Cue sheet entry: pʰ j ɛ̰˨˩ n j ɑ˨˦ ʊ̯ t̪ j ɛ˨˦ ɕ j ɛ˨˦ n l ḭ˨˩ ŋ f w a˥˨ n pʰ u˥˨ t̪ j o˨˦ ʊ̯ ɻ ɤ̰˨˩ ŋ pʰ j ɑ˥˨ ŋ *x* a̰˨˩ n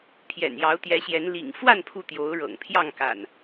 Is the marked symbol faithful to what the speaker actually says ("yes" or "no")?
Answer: no